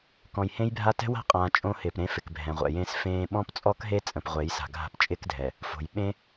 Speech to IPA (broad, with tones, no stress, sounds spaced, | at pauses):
k ɔ̃˨ j h ẽ˦ j bʱ a˦ t ɛ̤˦ w a̤˦ qʼ ãː˨ t͡ʃʼ õ˦ h ɪː˨ p ɾ ẽ˦ f ɪ˨ k bʱ ɛ̃˨ ʁʷ ɛ̰˨ j ẽː˦ s f ẽː˦ ɓ ɔ̃˦ p t͡sʼ ɔ˦ k ɦ e˦ t͡sʼ ə̃˨ p ʁʷ e˨˦ j s a̤˨ ɡʱ a̤˦ p t͡ʃʼ ɪː˦ k dʱ ɛ˨ | f o̤˨ j ɓ ẽ˦